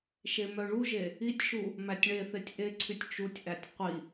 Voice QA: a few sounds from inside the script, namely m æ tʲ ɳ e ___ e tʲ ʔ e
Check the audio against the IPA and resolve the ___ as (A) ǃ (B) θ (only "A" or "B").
B